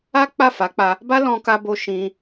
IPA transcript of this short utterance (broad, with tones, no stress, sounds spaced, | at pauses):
a˦ k͡p a˦˨ f a˨˦ k͡p a˧ | b a˦ l ɔ̃˧ k a˧ b o˧ ʃ ĩ˧